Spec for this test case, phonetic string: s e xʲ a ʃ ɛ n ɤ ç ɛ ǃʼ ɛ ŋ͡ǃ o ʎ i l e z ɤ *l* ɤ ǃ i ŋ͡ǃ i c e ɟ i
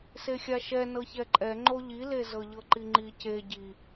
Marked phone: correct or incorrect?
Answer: incorrect